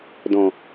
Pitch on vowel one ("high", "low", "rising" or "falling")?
low